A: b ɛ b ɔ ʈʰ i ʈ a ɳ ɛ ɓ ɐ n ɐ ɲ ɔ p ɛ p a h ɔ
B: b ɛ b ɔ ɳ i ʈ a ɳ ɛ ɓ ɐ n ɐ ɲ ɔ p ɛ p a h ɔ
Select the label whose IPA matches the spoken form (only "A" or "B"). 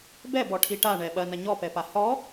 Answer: A